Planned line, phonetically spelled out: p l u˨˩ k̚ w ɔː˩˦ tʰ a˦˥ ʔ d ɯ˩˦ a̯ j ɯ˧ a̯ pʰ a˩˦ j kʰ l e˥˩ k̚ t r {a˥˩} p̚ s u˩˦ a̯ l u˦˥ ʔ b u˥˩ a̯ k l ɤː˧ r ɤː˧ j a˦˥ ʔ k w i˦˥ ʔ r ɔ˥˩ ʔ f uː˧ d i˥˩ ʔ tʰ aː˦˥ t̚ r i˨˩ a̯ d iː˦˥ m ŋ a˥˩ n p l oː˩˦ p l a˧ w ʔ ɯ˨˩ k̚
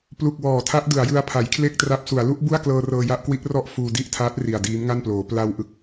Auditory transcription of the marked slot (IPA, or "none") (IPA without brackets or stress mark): a˦˥